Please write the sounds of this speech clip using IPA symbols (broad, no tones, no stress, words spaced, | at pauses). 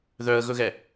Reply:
ðœə̯ɣɵɣɛ